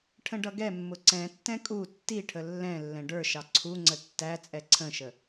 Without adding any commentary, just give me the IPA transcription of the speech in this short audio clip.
ʈʰ ə̃ ɖ ʌ ɡ ɛ mː ʊ ǀ ɛ̃ tː ɛ̃ kʼ u tː i ʈʰ ə lː ɛ̃ lː ɛ̃ ɖ ə˞ ʃ ɑ ǀʰ u ŋ͡ǀ ə tː æ t͡sʼ ɛ ǀʰ ə̃ ʃ ə

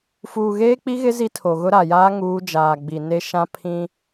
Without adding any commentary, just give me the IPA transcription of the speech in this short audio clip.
f uː˨ ɣ eː˦ k͡p i˦ ɣ ɪ˦ z i˦ tʰ o˨ ɣ ʊ˦ ɾ a˨ j aː˦ ŋ uː˦ d͡ʒ aː˨ ɡ͡b i˨ n e˦ ʃ ã˦ pʰ ĩ˦

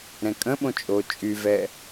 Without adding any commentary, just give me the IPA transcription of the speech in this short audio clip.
ɾ ɛ̃ kʼ ə̃ ɓ õ t͡ʃʼ o t͡ʃʼ y v ɛ

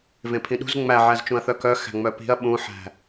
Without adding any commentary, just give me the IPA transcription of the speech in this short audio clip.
v ẽ pʰ ĩ ɗ ṳ z ŋ͡m æ ʕ æ z t͡ʃ ũ ɐ̯ θ œ k œ x æ̤ ŋ͡m œ p i̤ ɐ̯ ɓ ũ ħ æ̤

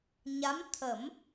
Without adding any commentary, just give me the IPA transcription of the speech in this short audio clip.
ɲ a˧˥ m t̪ʰ ə˨˩˦ m

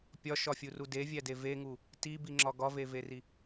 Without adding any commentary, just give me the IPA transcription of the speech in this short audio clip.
pʲ ɒ ʃ ɒ fʲ u r u d e vʲ æ d e v e ŋ u | t i b i ŋ͡ǁ ɒ ɡ ɒ v e v e r i

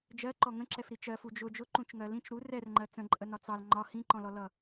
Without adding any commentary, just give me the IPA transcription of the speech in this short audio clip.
d͡ʒ ɜ ǃ ɔ ŋ ə̃ ǁ ɛ f ɾ i t͡ʃ ɜ f u d͡ʒ ʊ d͡ʒ ʊ ǃ ũ t͡ʃ ŋ ɜ l ĩ t͡ʃ ɾ u r ɛ r ŋ͡ǃ ɜ t͡s ə̃ ǃʼ ə n ɒ t͡s ɑ l ŋ͡ǃ ɒ h ĩ ǃ ɔ̃ l ɔ l ʌ

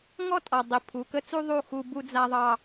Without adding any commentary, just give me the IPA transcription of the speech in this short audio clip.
ŋ ɔ˦ tʼ ɔ˨ dˤ i˨ pʰ u˨ k ə˦ t͡s u˦ ðˤ u˦˨ x u˦ b u˦ d͡z a˦ ðˤ ɑ˦

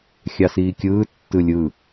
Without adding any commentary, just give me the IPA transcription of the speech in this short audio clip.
xʲ ɑ s iː kʲ ɯː tː ɯ lʲ ɯ

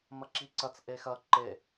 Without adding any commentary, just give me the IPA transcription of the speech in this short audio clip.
m ɐ ǁ i ǀ ɐ t͡s ʔ e x ɐ ǃ e

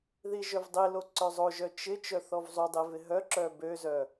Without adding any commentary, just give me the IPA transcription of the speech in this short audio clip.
ð i ʒ œ v dˤ i l o ǀ œ zˤ o ʒ œ t͡ʃ ɪ t͡ʃ œ θ ɔ v zˤ u dˤ i v ɪ ɦ œ ǁ œ b ø z œ

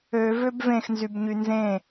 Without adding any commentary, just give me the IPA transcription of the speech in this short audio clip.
ø v ø b v ẽ x n z y b ɲ y n z ẽ

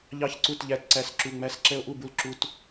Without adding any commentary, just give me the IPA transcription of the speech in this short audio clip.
ʎ ɑ˦ ç ǀ u˦˨ t ʎ æ˦ t ǀ æ˦˨ s ǁ u˦˨ ŋ͡m æ˦˨ s ǁ ɛ˦ o̯ ʔ u˦˨ b u˦ l ǁ u˦ t

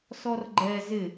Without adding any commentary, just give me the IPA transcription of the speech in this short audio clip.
s ɔ r ɡ͡ǃ ɛ z ɪ

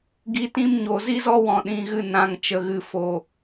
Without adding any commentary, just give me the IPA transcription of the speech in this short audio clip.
ɡ i˨ t ĩ˧ m ɲ o˨ z i˦ z ɔ˦ w ɔ̃˨ ɗ ĩ˨ ɣ ɨ˦˨ n ã˨ ŋ t͡ʃ ə˨ ɣ ɨ˨ f o˨

